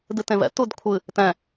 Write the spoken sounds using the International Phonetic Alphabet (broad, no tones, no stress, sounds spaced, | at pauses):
d ɨ t ẽ v ɛ̰ t u d kʷʰ ɨ | t ɛ̃